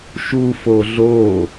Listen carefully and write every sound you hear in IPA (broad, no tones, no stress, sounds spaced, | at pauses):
ʃ u f o ɮ o